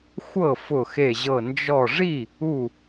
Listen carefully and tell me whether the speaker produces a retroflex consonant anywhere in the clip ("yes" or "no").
yes